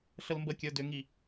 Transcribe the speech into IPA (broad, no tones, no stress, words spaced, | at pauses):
ɬəlmbəkʲə˞ dʏŋi